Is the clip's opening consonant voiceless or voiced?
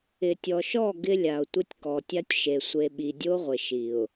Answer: voiceless